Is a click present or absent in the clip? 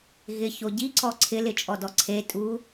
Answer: present